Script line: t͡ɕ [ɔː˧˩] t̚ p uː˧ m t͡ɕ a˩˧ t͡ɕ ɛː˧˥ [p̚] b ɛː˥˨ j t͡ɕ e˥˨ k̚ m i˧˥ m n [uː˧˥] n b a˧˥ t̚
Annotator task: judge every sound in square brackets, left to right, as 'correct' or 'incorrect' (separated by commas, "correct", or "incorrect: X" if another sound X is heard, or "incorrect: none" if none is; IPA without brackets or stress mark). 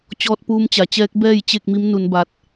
incorrect: ɔː˧, incorrect: k̚, incorrect: u˧˥